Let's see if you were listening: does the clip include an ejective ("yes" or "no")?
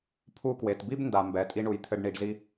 yes